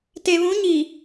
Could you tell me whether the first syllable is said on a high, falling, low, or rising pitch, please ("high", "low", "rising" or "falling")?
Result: low